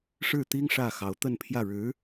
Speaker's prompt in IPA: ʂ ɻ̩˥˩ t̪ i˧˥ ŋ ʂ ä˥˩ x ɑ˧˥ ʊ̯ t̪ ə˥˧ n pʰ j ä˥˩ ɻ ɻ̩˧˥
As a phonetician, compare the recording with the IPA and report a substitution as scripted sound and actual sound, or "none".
i˧˥ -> i˥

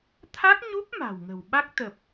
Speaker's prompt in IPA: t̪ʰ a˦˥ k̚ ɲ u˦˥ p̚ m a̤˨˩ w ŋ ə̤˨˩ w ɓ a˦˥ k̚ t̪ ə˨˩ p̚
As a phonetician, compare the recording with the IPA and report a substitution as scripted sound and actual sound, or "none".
none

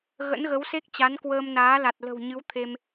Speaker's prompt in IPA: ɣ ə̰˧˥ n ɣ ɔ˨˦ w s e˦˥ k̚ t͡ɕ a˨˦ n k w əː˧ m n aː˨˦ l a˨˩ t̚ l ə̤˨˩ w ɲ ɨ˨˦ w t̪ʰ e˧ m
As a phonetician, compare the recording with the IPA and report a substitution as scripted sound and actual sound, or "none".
ɔ˨˦ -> ə˨˦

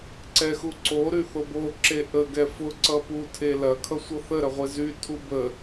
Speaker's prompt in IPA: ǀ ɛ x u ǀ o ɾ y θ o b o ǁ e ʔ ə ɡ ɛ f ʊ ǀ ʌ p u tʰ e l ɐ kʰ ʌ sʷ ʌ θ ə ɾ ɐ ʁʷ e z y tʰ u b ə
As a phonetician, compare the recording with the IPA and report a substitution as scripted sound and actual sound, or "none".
none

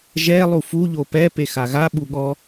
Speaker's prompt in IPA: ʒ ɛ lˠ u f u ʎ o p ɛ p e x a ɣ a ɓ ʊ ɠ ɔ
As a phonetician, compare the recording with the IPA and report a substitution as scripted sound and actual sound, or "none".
ʊ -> u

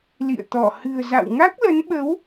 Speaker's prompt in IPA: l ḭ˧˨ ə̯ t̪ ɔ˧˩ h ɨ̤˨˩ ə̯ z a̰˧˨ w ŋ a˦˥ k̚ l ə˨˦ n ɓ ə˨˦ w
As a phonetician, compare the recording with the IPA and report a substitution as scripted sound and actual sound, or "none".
none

